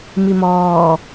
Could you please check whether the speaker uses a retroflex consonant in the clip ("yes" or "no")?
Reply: no